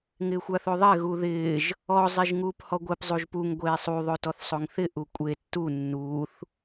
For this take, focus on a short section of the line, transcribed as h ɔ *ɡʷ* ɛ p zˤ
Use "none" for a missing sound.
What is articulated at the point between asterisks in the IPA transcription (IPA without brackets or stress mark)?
ɡʷ